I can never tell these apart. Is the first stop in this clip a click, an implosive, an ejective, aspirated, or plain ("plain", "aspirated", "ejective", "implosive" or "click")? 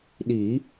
implosive